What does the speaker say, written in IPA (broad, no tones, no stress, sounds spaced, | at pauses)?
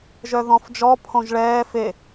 ʒ œ ð ɔ̃ f d͡ʒ ɔ pʰ õ ʒ ɭ ɛː f e